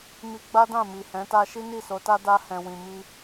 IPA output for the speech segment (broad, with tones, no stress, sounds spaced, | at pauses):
m i˧ ɡ͡b a˦ d ã˦˨ m i˨ h ɛ̃˨˦ t a˦ ʃ i˦ n i˦˨ s o˨˦ t a˦ d a˧ h ɛ̃˨ w ĩ˨ m i˧